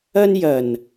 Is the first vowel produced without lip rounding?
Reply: yes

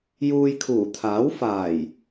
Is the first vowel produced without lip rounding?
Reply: no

